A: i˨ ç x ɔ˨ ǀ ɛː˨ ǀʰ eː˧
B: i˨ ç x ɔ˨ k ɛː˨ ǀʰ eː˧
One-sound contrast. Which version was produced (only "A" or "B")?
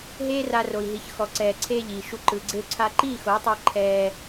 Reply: A